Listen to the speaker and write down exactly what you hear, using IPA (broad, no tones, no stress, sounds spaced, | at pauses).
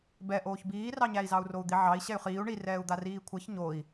b ɛ ʔ oː ç b iː r ɑ ɲ æ i̯ z ɑ u̯ r o u̯ d̪ i ʕ ɑ i̯ ɕ ɛ y̯ χ iː u̯ ɳ i r ɛː u̯ d̪ a r iː kʷʰ æ ç ɲ o i̯